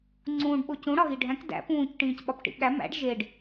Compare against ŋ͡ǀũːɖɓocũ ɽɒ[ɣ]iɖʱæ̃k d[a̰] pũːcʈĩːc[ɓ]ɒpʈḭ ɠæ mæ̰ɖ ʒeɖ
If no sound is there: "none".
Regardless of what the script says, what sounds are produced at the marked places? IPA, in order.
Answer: ɣ, æ̰, ɓ

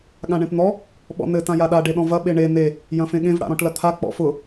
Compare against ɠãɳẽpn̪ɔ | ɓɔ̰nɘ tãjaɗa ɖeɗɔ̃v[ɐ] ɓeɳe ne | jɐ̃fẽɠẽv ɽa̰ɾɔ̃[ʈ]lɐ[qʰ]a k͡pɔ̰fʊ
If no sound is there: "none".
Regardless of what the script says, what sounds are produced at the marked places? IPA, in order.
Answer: ɐ, ʈ, t̪ʰ

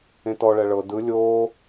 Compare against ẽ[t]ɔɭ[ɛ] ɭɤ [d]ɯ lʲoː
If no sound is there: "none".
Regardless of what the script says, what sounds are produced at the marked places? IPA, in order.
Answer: t, ɛ, d

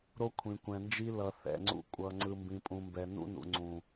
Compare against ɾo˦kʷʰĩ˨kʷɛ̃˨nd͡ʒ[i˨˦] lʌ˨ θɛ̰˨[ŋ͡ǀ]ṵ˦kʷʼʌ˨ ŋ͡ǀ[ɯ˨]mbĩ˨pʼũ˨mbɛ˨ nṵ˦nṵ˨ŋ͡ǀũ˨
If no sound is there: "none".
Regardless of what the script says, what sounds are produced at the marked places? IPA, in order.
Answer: i˦, ŋ͡ǀ, ɯ˨

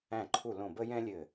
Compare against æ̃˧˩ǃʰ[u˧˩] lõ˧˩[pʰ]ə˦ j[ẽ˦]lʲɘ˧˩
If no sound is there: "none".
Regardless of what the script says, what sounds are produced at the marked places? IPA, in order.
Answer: u˧˩, b, ɛ̃˦

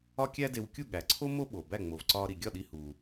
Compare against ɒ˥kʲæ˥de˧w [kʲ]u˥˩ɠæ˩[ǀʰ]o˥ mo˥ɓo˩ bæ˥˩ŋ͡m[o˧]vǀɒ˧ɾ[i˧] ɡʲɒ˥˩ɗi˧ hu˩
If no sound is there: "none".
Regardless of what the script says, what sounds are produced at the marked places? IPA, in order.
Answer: kʲ, ǀʰ, o˩, i˩

